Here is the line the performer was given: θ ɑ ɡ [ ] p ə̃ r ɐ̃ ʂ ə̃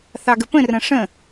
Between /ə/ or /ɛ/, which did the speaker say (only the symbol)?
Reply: ə